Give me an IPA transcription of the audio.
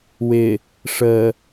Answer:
w ɪ | ʂ ə

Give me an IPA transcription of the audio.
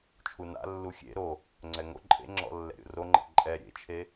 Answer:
t͡ʃʰ u n a̰ lː u xʲ ḛ ɾ o | ŋ͡ǀ ɛ ŋ o̰ ǃʼ ḛ ŋ͡ǁ ɔ̰ lː ɛ̰ ɾʲ o̰ r o ŋ͡ǃ ḛ ǃʼ ɛ ɾʲ ḛ t͡ʃʰ e

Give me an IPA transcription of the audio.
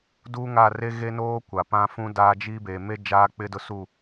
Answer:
d uː˦ ŋ a˦˨ r e˦ ɣ e˦ n oː˦ kʷ a˨ p ã˦ f ũ˦ d aː˦ d͡ʒ i˦ b e˨ m e˦ d͡ʒ aː˦ k͡p ɪ˦ d ʊ˦ s u˦˨

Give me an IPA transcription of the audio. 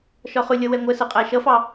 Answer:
ʃ ɒ χ ʊ lʲ ʌ w ɛ ŋʷ ɜ s ʌ qʼ æ ʃ ʌ f ɑ

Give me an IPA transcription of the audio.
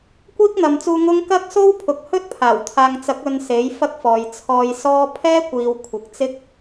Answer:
kʷ iː˥ k̚ n̪ ɐ˨ m t͡s uː˧ ŋ ʊ˥ ŋ k ɐ˥ k̚ s o˥ w pʰ ʊ˨ k̚ h ɵ˥ t̚ pʰ aː˨˩ w t̪ʰ aː˨ ŋ t͡s ɐ˨˥ k̚ ɵ˧ n s e˨˥ j f ɐ˥ k̚ f ɔː˨ j t͡sʰ ɔː˧ j s ɔː˥ pʰ ɛː˥ kʷ iː˨ w kʷʰ ɪ˨ k̚ t͡s ɪ˥ k̚

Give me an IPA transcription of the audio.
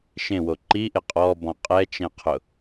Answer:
ʃ ẽ w o ǃ i ʔ ɪ qʼ ɔ b ɔ̃ qʼ ɛ t͡ʃ ɛ̃ qʰ ʊ

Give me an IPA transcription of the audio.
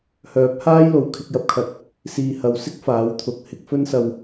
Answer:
h œː˨˥ p̚ h aː˥ j l o˨ w kʰ ɪ˧ k̚ j ɐ˧ p̚ kʰ ɐ˨˥ t̚ | s iː˨ h ɐ˨ w s ɪ˥ k̚ f aː˨˥ w t̪ʰ ʊ˨˥ k̚ h ɪ˧ k̚ f ɵ˥ n s ɐ˨ w

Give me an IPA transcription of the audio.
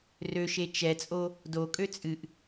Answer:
r ø ʃ e t͡ʃ ɛ t͡sʼ o | d o kʼ ø t͡sʼ ɨ ʔ

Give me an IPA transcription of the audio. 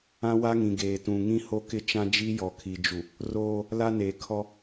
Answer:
ã˦ w a˦ ŋ ĩ˨ ɡ eː˨ t ũ˨ ŋ ĩ˦ h o˦ k ɪ˦ t͡ʃ ã˦ d͡ʒ i˦ j ɔ˨ kʰ i˨ d͡ʒ u˨ | r oː˦ | l a˦ n e˨ kʰ ɔ˦

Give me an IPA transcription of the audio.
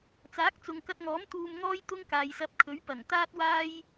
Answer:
t͡s aː˨˥ k̚ t͡s ʊ˨ ŋ k ɐ˧ t̚ ŋ ɔː˨˥ m t̪ uː˧ m ŋ ɔː˥ j t̪ ʊ˥ ŋ k aː˨ j s ɐ˧ p̚ kʰ ɵ˨˥ ɥ p ɐ˨˩ ŋ t̪ aː˥ t̚ w aː˥ j

